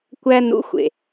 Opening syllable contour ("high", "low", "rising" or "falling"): high